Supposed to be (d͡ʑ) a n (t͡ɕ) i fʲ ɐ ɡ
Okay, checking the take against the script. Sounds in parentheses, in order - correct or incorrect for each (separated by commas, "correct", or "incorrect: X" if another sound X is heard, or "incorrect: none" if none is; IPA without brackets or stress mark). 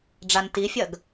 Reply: incorrect: ɖ͡ʐ, incorrect: t